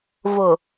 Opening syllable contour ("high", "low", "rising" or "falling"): low